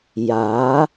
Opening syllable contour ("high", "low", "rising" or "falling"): rising